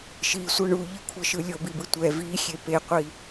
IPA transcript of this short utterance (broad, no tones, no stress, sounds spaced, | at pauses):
ʃ i sʷ ʌ ɳ u ʎ ɯ kʷʰ ʌ ʃ ɯ lʲ o b i b ɯ tʷ ɛ v i xʲ e p e qʷ i